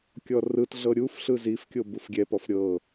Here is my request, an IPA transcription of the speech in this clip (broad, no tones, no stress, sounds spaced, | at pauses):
kʲ ɔ r ɯ t ɮ ɤ ɾʲ u f ɬ ɯ z i f kʲ o b u f ɡʲ ɛ p ɔ f ɾʲ ɤ